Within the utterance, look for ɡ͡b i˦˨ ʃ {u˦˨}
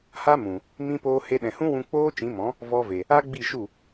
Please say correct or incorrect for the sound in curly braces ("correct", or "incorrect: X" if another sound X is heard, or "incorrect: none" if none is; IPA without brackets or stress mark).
correct